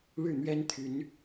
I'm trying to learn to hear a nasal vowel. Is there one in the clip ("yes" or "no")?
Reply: no